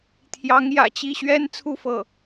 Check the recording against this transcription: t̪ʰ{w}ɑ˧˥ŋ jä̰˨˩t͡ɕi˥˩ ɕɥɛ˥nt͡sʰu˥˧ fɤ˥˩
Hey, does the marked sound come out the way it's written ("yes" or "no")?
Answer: no